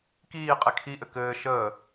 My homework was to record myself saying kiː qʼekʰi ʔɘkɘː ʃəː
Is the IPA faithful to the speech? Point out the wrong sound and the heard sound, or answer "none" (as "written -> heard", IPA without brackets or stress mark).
none